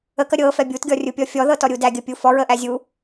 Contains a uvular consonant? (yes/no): no